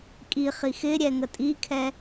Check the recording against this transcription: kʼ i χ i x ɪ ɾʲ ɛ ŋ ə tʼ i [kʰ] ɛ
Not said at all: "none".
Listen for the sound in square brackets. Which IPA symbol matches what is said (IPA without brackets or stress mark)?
kʰ